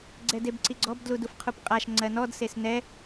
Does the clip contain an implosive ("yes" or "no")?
no